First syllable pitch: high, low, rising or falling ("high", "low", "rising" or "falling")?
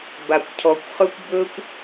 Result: low